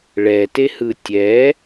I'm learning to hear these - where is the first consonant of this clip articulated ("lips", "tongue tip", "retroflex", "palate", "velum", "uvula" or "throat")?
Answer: retroflex